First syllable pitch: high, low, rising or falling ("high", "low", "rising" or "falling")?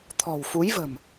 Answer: low